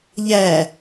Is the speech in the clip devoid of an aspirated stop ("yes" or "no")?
yes